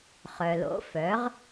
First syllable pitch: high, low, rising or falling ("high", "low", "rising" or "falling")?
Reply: low